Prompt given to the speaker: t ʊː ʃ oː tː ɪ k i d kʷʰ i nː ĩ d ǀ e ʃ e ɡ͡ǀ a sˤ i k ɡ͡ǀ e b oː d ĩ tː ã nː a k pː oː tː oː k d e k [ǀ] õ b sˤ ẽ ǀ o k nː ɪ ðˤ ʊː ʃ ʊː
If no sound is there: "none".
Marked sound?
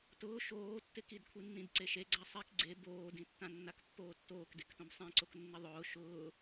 t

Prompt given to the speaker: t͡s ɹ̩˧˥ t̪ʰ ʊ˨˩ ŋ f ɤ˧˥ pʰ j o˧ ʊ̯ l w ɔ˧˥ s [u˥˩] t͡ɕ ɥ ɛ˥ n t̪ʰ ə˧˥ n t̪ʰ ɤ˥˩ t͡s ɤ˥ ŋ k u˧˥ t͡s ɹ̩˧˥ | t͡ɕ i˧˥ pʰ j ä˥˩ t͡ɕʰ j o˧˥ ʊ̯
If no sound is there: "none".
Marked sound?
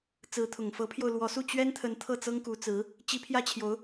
u˥˩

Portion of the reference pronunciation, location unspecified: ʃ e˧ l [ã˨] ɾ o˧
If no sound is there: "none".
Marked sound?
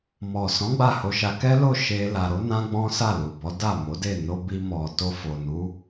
a˨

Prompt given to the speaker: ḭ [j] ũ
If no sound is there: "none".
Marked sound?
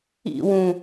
w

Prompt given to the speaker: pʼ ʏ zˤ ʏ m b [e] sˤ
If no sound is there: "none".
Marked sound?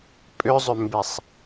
e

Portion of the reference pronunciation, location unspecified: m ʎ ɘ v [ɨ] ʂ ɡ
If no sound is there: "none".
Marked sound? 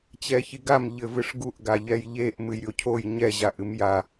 ɨ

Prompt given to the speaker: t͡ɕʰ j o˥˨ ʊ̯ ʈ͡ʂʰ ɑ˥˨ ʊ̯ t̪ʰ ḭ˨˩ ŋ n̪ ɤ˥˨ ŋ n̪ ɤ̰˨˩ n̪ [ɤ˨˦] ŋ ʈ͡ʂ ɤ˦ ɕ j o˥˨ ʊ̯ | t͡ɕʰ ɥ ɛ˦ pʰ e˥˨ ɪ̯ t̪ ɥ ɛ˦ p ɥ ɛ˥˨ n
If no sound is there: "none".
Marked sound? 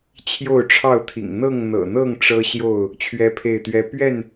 ɤ˥˨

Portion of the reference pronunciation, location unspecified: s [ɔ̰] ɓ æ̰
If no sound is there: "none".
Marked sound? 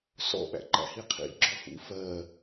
ɔ̰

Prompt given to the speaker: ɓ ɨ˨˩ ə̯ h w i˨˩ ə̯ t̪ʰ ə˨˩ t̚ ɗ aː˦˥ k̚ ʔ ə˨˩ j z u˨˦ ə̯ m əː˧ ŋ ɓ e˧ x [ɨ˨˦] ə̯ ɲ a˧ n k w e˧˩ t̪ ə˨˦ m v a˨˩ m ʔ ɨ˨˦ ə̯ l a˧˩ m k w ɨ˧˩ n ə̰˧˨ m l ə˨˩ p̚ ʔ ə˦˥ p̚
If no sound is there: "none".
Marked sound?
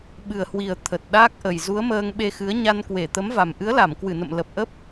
ɨ˨˦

